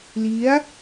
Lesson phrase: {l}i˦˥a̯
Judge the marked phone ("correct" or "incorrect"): correct